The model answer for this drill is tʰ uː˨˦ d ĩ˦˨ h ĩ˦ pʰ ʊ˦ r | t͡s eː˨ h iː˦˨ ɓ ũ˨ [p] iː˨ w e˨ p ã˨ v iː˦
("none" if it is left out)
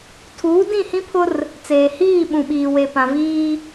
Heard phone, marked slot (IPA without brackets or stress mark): ɓ